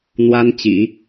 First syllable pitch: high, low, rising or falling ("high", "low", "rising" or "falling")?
high